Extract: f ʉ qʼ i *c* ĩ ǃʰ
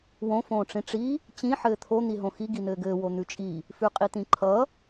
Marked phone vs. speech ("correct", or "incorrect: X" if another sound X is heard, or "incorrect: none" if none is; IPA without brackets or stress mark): incorrect: t̪